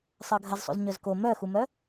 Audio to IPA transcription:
sˤ ɜ ɡʱ ɐ z sˤ ṵ z ɲ œ z k o m œ x u m œ

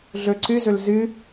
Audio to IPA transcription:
ɮ ɵ ǀ ɨ z ɵ l z ɨ

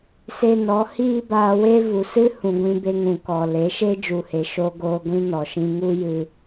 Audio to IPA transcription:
s e˧ n ɔ˨˦ h iː˦ b aː˧ w e˦ v u˨ s ɨ˦ h ũ˨ ɡʷ ĩ˧ b e˧ ŋ ũ˨ k ɔ˨ l e˨˦ ʃ e˦ d͡ʒ u˨ h e˨ ʃ oː˧ ɡ oː˧ ɡʷ ĩ˦ n ɔ˨ ʃ ĩ˧ ŋ u˦ j ɨ˧

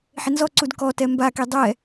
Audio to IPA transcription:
ħ ɪ n z ɔ ǀ u d k ɔ t ɛ m b a k i dˤ ɛ

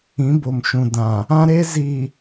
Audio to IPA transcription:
ĩ˨˦ b o˨ m ʃ ũ˨ d ã˨ | ã˦ ɾ e˦ z i˨

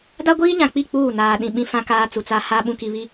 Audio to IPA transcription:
d a˦ ɡʷ iː˦ ɲ ã˨ k͡p i˦˨ k͡p uː˦˨ n aː˨ ɗ ĩ˨ ɓ ĩ˦ f ã˦ k aː˦ t͡s u˨ t͡s a˦ h a˦ ɓ ũ˨ k i˨ β i˨

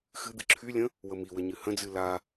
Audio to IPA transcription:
x ɨ d̪ ɨ ǁʰ y lʲ ə̃ | w ə m i w ə ɲ ɨ h ə̃ d͡z ɨ l a

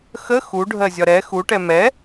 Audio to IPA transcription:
x ə x u ɖʱ ɜ zʲ ɒ ɾ ɛ x u ʈ ɛ m ɛ

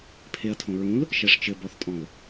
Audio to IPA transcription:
pʰ e ɐ̯ tʰ õ ɹ ũ l | ʃ ɛ ʂ t͡ʃ ɘ b ɔ θ tʼ ɔ̃ l

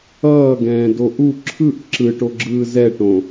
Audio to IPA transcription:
ʌː ɡ ɛ̃ː d o ʔ u ǁʰ ɯ ʔ ǁ ɯ ʈ o ɡ͡ǁ ɯː z ɛ ʈ õ

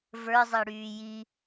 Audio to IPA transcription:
v ə˞ zˤ e ɽ yː j i

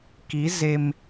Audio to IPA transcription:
k i˨˦ z e˧ m

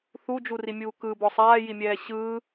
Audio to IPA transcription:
θ u d͡ʒ u r i mʲ uː k ɯ b ɔ sˤ aː j i mʲ ɛː ɕ ɯː

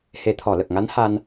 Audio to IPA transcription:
h e˨˩˦ t̪ʰ ɔ˨˩˨ l ə˨˩ k̚ ŋ a˧˥ n h a˧ n

